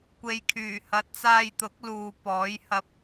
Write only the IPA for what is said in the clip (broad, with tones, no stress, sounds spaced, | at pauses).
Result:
kʷ e˨˧ j kʰ yː˨˩ h ɐ˨˥ t̚ t͡s aː˧ j t̪ ʊ˨˥ k̚ l uː˨ p ɔː˨˥ j h ɐ˧ p̚